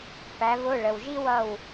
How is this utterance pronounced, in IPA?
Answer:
pæ˩˧vʊ˩˧˩ ɭə˩wʒi˦wʌ˧˩w

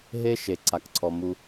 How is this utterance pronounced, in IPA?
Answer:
ɦe˦ ʃe˨ǀa˨kǀʰɔ˨ mu˨

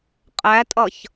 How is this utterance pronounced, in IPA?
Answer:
qʼætʼʌç

